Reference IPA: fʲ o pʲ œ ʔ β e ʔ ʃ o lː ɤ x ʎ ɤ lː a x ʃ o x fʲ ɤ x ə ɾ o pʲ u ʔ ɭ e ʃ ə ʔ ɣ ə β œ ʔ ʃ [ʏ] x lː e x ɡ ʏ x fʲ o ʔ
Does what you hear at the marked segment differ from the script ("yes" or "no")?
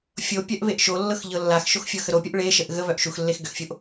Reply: yes